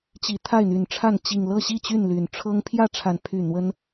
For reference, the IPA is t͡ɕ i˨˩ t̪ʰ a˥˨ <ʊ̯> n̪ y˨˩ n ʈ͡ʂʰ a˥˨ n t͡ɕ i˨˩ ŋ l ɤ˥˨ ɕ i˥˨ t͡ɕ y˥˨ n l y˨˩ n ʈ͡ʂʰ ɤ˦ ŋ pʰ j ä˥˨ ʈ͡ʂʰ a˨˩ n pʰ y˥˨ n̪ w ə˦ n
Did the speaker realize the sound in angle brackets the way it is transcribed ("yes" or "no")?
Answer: no